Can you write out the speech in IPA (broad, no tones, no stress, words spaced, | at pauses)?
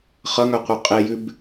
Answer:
χʌŋœqʷœ qʼejʉb